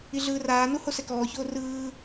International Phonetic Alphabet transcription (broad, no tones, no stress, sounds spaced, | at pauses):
i ɮ ɯː r aː n u h o s ɛ k ɔː ç oː r ɯː